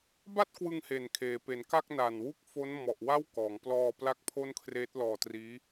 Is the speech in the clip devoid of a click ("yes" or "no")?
yes